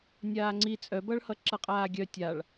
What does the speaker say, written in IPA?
nʲ aː ŋ͡ǀ i t͡sʼ œ b ʌ ɭ h ʌ ǁ ʌ qʼ aː ɡʲ œ tʲ a ɭ

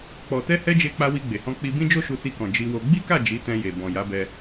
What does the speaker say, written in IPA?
k͡p ɔ˨ t ɛ˧ h ɛ˧ d͡ʒ e˧ k͡p a˧ w i˧ ɡ͡b e˨ h ɔ̃˧ k͡p i˧ b ĩ˦ d͡ʒ o˦ ʃ u˧ s i˧ k ɔ̃˨ d͡ʒ i˧ w o˧ ɡ͡b i˦ k a˦˨ d͡ʒ i˨˦ t ɛ̃˧ j e˨ b ɔ̃˨ j a˨˦ b ɛ˧

